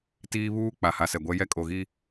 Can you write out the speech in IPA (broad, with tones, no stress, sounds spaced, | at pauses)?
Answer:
t iː˦ β uː˦ k͡p a˨ h a˨ s ɛ˨ ɡʷ ɛ˦ j ɛ˦ kʼ o˨ ɣ i˦